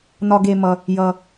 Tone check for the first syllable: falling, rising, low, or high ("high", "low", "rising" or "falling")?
high